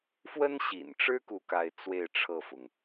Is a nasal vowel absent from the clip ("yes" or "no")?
yes